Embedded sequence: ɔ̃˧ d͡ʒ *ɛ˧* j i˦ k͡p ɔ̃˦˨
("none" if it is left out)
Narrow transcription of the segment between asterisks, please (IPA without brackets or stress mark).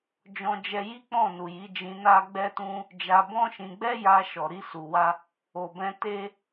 ɛ˧